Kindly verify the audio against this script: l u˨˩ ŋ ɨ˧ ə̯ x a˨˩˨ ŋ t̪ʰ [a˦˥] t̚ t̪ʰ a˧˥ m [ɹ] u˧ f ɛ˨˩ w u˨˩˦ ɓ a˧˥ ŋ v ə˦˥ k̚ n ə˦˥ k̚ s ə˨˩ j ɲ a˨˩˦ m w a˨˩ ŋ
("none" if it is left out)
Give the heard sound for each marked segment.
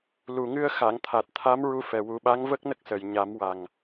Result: a˨˩, ɹ

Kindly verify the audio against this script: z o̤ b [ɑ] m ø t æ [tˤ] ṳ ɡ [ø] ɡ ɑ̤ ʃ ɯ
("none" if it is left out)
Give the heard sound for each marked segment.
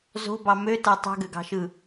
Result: ɑ, tˤ, ø

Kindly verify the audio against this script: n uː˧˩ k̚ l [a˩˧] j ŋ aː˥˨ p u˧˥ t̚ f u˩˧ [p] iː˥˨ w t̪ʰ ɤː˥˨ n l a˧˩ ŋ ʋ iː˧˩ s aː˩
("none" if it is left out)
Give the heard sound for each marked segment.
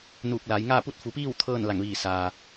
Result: a˩˧, p

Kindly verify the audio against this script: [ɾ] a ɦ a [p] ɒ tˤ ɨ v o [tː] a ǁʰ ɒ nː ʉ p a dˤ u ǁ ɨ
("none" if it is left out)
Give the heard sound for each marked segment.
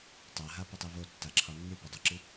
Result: tˤ, p, tː

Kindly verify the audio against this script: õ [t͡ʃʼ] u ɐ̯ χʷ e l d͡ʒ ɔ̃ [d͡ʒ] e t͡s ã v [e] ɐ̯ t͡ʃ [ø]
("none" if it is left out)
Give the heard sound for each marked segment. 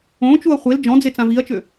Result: t͡ʃ, d͡z, i, ø

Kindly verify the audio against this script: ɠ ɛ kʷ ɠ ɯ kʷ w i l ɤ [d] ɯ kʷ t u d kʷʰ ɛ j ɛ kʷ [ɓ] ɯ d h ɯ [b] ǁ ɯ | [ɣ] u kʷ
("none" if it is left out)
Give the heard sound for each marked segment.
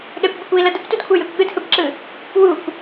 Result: d, ɠ, b, w

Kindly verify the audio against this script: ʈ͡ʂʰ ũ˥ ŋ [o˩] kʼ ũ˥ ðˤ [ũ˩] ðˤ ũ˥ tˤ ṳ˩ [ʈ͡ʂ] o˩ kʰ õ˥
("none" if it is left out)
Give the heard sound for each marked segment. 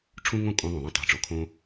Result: õ˩, ũ˩, ʈ͡ʂ

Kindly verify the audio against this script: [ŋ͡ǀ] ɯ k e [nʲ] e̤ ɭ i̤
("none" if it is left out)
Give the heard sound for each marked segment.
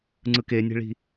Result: ŋ͡ǀ, nʲ

